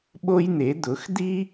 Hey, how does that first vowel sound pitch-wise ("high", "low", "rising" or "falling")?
high